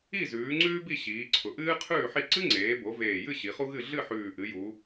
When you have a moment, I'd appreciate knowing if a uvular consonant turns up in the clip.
yes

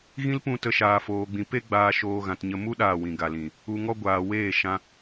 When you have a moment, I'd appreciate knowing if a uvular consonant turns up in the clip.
no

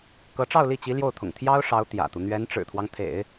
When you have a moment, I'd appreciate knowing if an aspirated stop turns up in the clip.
yes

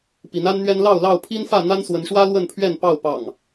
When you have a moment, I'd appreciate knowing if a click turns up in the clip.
no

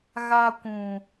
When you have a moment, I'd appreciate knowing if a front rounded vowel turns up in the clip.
no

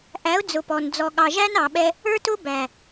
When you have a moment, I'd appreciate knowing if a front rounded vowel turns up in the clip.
no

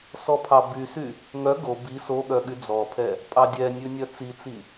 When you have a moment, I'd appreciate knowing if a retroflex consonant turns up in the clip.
no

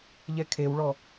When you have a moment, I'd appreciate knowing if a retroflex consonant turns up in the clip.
yes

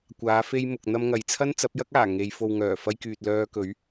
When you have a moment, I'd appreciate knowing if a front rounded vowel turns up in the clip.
yes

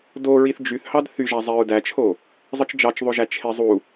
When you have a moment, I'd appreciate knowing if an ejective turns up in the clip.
no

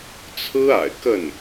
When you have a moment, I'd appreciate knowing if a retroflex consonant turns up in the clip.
no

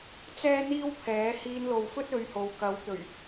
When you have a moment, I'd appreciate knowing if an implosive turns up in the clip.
no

